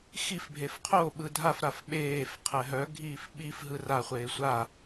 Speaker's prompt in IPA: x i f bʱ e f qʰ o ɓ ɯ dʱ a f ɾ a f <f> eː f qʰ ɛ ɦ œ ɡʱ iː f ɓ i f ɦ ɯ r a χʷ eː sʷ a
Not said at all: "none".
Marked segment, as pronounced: ɓ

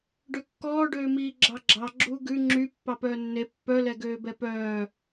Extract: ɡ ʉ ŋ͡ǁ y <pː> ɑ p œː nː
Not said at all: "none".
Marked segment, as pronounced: pː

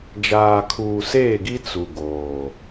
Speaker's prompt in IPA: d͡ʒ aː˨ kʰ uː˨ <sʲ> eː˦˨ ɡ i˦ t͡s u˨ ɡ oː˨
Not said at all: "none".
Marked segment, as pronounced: s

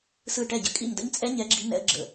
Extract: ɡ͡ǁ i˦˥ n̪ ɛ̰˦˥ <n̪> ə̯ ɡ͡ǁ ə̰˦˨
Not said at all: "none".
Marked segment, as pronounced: none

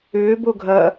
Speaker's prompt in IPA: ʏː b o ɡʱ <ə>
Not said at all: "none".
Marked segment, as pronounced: ɐ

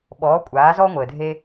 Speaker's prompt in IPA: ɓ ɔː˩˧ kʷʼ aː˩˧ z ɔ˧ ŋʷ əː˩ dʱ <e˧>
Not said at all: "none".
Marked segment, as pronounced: e˧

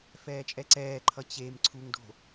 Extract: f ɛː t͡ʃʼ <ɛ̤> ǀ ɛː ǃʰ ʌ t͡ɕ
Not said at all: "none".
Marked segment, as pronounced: ɛ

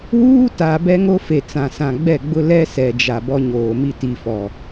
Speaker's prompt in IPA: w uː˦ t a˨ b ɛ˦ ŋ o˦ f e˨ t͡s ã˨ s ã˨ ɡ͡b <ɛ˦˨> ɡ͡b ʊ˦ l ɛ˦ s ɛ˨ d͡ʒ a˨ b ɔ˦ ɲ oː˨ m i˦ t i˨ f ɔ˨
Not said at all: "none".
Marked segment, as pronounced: ɛ˦˨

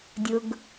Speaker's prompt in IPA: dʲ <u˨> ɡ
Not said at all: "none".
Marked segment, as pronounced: ʊ˨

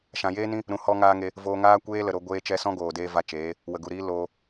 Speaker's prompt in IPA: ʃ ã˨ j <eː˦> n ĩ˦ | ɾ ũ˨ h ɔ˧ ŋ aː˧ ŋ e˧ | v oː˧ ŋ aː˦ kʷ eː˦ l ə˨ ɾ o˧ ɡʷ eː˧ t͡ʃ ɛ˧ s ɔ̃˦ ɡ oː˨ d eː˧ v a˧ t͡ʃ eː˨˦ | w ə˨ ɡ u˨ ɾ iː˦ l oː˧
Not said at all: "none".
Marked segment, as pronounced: eː˦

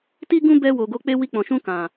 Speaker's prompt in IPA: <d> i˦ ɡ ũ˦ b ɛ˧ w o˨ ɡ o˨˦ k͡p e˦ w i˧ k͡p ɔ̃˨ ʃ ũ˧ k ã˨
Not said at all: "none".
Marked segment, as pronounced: t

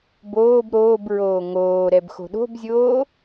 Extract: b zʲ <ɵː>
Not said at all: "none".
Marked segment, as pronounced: oː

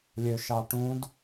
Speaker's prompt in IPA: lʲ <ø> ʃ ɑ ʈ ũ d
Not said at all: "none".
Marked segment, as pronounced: ø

